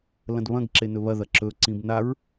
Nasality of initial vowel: nasal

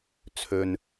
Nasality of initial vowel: oral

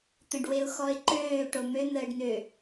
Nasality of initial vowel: nasal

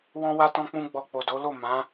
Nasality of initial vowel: nasal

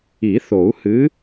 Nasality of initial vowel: oral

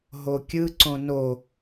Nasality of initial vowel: oral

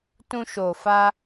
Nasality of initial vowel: nasal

